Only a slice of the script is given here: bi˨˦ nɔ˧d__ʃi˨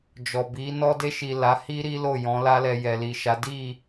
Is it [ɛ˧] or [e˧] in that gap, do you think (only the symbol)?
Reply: e˧